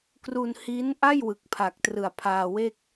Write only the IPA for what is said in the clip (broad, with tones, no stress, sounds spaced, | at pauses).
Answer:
k r u˧ n h i˦˥ n ʔ a˥˩ j w ɯ˨˩ k̚ pʰ a˨˩ k̚ t r ɯ˨˩ a̯ pʰ aː˧ w e˥˩ k̚